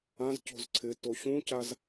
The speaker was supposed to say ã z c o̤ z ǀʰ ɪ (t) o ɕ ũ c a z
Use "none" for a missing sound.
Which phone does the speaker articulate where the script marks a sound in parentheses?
t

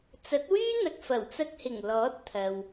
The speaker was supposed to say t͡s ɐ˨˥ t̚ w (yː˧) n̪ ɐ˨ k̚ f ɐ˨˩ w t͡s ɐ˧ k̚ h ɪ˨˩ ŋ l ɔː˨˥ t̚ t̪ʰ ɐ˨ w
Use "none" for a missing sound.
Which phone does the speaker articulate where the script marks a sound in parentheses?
yː˥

